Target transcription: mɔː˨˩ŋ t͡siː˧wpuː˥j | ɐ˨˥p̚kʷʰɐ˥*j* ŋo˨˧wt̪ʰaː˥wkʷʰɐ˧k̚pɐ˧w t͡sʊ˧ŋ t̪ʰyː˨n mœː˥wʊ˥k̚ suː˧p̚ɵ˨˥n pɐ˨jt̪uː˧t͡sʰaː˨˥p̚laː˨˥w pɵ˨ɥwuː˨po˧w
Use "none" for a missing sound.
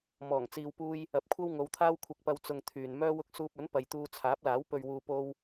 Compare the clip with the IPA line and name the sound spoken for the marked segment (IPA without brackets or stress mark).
w